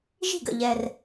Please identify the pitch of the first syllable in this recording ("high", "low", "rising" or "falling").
falling